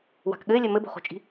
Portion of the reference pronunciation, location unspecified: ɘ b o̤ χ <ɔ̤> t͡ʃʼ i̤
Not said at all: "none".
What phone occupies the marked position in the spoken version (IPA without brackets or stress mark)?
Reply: o̤